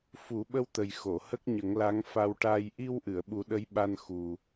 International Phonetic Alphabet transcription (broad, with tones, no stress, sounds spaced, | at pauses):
f u˨˩˦ ɓ ə˧ w t̪ ə˨˩ j x o˨˩˨ h ə˦˥ k̚ ɲ ə˨˩˦ ŋ l a˧˥ ŋ f a˧ w ʈ a˧ j ʔ i˧ w ʔ ɨ˨˩˨ ə̯ ɓ u˨˩˦ ɗ ə˧˥ j ɓ a˧ n x u˨˩